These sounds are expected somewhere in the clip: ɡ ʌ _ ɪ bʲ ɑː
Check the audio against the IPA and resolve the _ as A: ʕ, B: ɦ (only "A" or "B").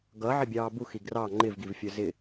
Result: A